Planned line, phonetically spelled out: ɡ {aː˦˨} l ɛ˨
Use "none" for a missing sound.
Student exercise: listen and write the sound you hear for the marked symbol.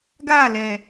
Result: aː˦˨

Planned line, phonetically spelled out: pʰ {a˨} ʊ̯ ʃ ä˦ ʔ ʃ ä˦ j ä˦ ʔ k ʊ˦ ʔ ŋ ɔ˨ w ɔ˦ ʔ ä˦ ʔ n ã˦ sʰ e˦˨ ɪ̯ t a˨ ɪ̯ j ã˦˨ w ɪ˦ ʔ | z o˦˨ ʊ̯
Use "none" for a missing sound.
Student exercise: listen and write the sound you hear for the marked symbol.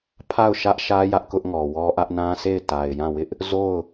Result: a˦˨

